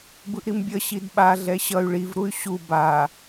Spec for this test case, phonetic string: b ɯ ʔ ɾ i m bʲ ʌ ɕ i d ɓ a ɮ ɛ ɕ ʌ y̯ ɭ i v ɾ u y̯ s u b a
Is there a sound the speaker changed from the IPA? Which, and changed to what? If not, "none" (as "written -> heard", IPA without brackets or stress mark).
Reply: s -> ɕ